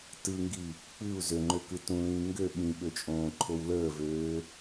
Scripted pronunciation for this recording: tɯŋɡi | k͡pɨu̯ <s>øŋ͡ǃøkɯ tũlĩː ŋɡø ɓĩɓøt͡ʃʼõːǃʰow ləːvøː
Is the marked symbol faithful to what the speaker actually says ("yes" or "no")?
no